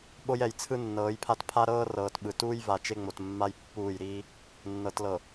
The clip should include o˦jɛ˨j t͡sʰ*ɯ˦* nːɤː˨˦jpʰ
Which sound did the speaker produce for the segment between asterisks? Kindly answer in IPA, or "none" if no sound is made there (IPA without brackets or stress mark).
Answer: ɯ˦